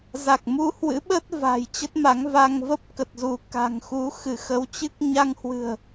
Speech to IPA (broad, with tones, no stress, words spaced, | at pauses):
za˨˩k̚mu˧hwɨ̰˧˥ ɓə˦˥t̚ va̤˨˩jt͡ɕə˦˥t̚ma˨˦ŋva˧ŋ və˦˥p̚kə˨˩t̚zu˧˩ ka̤˨˩ŋxu˨˦ xɨ˧˩xə˨˦wt͡ɕɨ˦˥k̚ ɲa˧ŋhwɨ̤˨˩ə̯